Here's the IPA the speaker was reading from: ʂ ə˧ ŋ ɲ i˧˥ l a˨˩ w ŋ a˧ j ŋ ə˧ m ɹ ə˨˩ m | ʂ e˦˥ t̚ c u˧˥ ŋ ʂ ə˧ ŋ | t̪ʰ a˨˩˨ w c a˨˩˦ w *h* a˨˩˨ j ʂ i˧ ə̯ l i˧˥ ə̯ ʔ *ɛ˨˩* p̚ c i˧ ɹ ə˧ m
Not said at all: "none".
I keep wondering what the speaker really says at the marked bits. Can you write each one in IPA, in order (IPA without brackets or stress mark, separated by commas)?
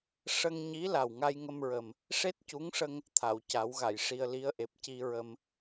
ɣ, e˨˩